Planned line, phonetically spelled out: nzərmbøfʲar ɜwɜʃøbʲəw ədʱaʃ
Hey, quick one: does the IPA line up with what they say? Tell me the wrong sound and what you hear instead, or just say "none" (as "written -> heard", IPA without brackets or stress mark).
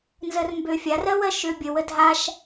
none